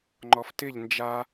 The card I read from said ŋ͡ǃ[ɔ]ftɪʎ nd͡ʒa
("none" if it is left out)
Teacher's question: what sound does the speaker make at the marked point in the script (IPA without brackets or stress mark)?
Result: ɔ